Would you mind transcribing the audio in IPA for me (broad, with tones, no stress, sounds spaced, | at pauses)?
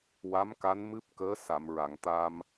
w a˧˥ m k a˧˥ n m ɨ˦˥ p̚ k əː˧˥ s a˨˩˨ m ɹ a˨˩˨ ŋ t̪ a˧ m